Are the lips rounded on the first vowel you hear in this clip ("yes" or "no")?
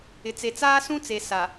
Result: no